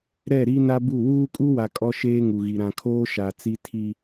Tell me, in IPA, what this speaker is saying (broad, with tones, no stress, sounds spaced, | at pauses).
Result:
ɾ ɛ˦˨ ɾ i˦ n a˦ b u˦˨ w uː˦ kʼ u˦ w a˨ kʼ ɔ˦ ʃ eː˦ ŋ u˨ ɣ i˨ ɾ ã˨ kʰ oː˦ ʃ a˨ t͡s i˦ tʰ i˦